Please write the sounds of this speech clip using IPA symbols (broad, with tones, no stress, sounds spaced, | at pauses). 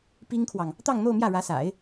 p i˥ ŋ kʰ w ɑ˨ ŋ | t̪ ɑ˥˧ ŋ n̪ o˥˧ ʊ̯ m j ä˥˩ ɻ ä˧˥ s a̰˨˩˦ ɪ̯